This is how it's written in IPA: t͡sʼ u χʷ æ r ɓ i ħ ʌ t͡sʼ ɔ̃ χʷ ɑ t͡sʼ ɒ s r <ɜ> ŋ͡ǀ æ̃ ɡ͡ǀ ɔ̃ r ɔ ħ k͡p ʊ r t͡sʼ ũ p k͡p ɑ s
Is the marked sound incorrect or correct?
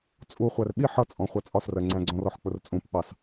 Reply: correct